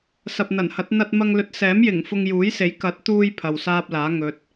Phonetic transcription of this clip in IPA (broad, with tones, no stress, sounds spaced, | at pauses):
s ɐ˨ p̚ n̪ ɐ˨˩ n h ɐ˨˥ t̚ n̪ ɐ˧ t̚ m ɐ˧ ŋ l ɵ˨˥ t̚ s ɛː˨˥ m j ɪ˨˩ ŋ f ʊ˧ ŋ j uː˨˥ j s e˨˥ j k ɐ˨˥ t̚ t̪ uː˧ j pʰ ɐ˨ w s aː˥ p̚ l aː˨˥ ŋ ɵ˨˥ t̚